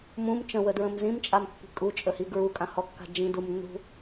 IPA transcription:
m ũ m t͡ʃ ə̃ w ə d ɹ ə̃ m z ĩ m t͡ʃʼ a m pː i̤ kʼ u t͡ʃʼ ə h i ɡ ɹ u kʼ ã h ɔ kː a̤ d͡ʒ ĩ d u m nː ṳ

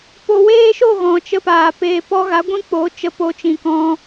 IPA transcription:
p o˨ w eː˦ ʃ o˦˨ ɣ ɔ̃˨ t͡ʃ ə˦ p aː˨ p eː˨ p ɔ˧ ɣ a˨˦ ɡʷ ĩ˦ k͡p o˨˦ t͡ʃ ə˧ p o˧ t͡ʃ ĩ˨ k ɔ̃˧

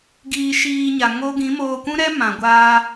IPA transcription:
ɡ iː˧ ʃ iː˧ ɲ a˨ ŋ o˦ ɡ ĩ˨˦ m oː˧ kʷ ũ˦ ɾ ɛ˦ m ã˨ ɡʷ aː˧

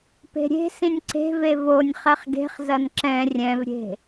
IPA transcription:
p e̤ ɾʲ e̤ s ĩ nʲ ǀ e̤ v e v o nʲ χ ɛ χ ɡ e̤ χ z ɐ n ǁ ɛ̃ rʲ ɛ̃ v ɾʲ e̤

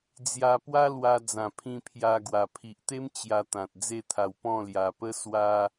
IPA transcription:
d͡z j a˧ p w a˦ l w a˧ d͡z ã˨˩ pʰ ĩ˧ pʰ j a˧ ɡ w a˨˩ pʰ i˨ ʔ t̪ e˦ m t͡ɕ j a˧ t̪ ã˨ t̚ d͡z e˥˧ t̪ʰ a˧ w p ɔ̃˥˧ l j a˧ p ə˦ s w a˦

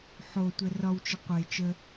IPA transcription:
ħ o tʷ ɛ r ɒ w t͡ʃ ə qʷ e t͡ʃ ə

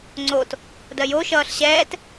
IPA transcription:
ŋ͡ǀ o t | d ɜ j o ʃ ʌː ɬ ɕ ɛː t

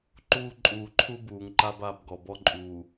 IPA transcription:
ǃ uː˦ ǃʼ uː˨ ǃʰ u˦ b uː˨ ŋ ǃ a˦ b a˨ b ɡ ɔ˨ b ɔ˦ ǃʼ uː˨

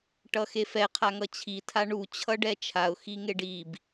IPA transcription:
ʈ ʌ x e f ɛ qʰ a ŋ ʌ t͡ɕʰ i tʰ a ɳ u t͡ɕʰ ʌ ɖ ɛ t͡ʃʰ a ʊ̯ x i ŋ e ɖ i b

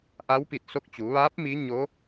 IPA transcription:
ʔ a˧˥ w p i˧˩ t̚ s o˧ k̚ t͡ɕ u˩˧ ʋ aː˧˥ p̚ m i˧˥ ɲ o˧˥

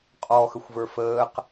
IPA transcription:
qʼ ɔː x ə xʷ v ə˞ f əː q

